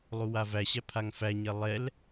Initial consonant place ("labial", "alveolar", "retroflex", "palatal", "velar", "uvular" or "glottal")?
alveolar